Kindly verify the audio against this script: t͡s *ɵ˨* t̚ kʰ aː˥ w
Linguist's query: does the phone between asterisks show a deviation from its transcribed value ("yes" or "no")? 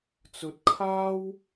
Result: no